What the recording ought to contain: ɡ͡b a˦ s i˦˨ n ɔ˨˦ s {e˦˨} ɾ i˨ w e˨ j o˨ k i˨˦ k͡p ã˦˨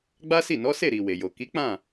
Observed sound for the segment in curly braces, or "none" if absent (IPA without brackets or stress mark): e˦˨